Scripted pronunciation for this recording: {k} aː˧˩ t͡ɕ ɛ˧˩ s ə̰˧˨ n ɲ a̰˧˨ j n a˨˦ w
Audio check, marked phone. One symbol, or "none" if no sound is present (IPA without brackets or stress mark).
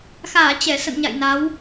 x